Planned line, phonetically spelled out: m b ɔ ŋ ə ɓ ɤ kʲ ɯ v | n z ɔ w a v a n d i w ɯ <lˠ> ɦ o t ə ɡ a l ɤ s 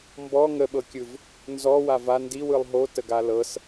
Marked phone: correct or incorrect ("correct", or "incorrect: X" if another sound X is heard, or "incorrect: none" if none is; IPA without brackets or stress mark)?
correct